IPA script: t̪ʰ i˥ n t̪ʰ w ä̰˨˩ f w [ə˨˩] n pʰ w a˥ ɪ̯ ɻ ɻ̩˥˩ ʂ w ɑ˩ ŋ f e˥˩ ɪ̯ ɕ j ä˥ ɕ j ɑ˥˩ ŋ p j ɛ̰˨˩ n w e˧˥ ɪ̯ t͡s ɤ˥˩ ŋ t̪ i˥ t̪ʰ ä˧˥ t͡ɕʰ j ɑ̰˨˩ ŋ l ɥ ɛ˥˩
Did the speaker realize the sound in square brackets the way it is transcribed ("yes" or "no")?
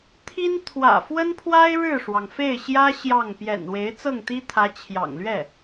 no